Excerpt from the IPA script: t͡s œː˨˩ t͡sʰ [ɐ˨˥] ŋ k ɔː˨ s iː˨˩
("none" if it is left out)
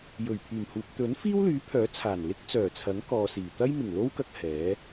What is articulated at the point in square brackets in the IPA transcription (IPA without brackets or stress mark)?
ɐ˨˥